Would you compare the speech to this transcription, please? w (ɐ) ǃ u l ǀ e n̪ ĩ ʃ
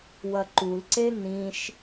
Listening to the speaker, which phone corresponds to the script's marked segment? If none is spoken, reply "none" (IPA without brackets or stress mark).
ɐ